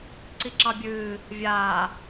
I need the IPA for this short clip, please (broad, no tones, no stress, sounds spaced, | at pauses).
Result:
ǀ i ǁ ɑ bʲ ɨː | vʲ aː